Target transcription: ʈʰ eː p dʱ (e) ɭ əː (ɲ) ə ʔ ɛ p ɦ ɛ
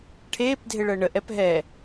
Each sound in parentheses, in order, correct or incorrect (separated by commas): correct, incorrect